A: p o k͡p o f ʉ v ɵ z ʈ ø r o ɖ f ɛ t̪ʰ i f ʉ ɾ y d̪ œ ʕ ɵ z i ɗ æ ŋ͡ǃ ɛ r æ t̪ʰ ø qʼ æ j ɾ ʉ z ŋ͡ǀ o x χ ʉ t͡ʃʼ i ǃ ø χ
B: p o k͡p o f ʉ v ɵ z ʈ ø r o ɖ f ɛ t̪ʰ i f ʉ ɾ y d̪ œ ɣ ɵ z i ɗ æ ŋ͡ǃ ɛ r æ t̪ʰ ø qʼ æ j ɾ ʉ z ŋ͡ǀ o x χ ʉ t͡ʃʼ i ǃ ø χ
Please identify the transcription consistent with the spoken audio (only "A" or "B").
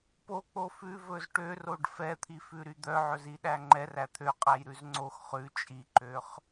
A